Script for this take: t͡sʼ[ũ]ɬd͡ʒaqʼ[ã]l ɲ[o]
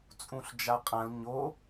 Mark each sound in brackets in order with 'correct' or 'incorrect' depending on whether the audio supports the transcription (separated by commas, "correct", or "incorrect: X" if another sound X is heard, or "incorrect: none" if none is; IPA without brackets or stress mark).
correct, correct, correct